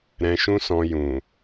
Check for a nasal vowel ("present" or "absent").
present